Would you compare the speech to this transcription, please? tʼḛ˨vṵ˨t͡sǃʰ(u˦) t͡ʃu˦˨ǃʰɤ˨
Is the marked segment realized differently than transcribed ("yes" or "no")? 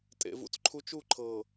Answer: no